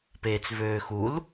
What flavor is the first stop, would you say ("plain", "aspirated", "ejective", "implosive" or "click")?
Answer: plain